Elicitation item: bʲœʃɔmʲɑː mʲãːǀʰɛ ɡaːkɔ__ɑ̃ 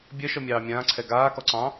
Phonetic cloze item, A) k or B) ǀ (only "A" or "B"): B